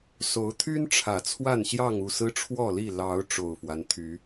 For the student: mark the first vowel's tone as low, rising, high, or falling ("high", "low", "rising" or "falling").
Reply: rising